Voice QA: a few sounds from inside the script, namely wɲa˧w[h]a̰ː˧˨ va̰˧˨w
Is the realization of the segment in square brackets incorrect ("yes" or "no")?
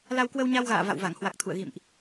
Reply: yes